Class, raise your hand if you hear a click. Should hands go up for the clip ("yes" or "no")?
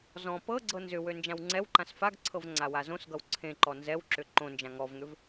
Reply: yes